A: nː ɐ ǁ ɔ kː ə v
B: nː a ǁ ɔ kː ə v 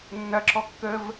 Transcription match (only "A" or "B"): A